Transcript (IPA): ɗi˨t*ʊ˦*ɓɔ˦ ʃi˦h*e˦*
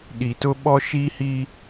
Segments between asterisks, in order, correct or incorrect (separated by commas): correct, incorrect